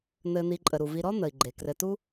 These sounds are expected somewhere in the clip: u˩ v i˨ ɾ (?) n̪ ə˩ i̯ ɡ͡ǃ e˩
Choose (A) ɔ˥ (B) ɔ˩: A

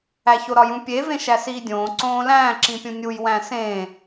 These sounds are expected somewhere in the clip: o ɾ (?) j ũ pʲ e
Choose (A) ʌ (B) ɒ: B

